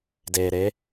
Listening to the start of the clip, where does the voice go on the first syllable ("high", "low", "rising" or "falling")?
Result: low